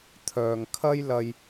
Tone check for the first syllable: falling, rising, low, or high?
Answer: low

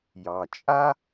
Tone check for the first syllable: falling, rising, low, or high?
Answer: low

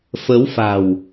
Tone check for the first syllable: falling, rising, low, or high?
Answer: rising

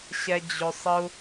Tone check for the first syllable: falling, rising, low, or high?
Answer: high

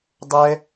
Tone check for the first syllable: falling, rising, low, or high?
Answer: high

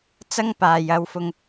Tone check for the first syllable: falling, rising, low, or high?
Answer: high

